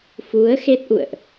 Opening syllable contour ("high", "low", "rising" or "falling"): rising